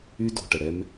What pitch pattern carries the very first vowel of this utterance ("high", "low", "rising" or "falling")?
high